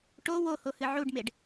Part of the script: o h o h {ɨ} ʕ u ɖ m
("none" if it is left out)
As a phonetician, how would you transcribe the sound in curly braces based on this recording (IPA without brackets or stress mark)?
ɨ